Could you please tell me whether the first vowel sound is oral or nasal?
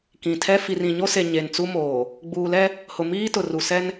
nasal